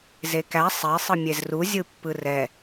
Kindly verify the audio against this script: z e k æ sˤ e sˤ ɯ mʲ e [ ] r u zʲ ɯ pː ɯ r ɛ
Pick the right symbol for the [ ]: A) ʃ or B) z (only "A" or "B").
B